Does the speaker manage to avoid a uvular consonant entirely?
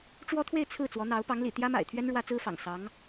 yes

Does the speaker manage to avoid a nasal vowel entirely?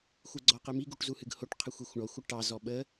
yes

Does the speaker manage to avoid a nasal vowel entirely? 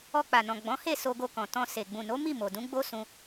no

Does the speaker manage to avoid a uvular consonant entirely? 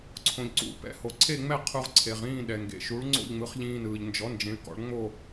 no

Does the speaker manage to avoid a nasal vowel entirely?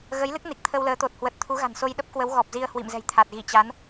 yes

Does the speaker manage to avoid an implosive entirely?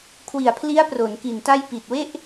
yes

